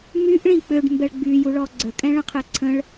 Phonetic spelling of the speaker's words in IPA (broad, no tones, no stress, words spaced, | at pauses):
myʔ ɭĩk͡pøɖ mbɛɭɡ͡byjuɭɔ ɡ͡ǀə kʼɛ̃ɭə̃qʰɛǀʰə̃ɭ